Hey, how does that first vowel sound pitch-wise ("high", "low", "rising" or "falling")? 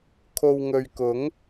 low